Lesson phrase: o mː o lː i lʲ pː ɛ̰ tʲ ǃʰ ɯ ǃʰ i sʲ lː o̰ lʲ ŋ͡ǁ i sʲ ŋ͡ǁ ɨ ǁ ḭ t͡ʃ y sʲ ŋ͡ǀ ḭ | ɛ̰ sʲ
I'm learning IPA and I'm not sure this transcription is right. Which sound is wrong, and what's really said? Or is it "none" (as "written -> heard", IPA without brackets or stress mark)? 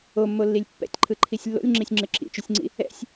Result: none